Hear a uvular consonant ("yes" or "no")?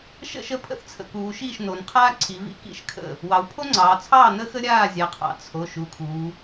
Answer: yes